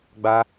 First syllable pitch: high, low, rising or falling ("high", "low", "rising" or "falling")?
high